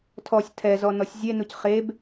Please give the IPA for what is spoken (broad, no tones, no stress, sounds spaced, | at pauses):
tʰ ɔ sʲ tʰ ɛ z ɔ n ɔ sʲ zʲ e n u c χ e b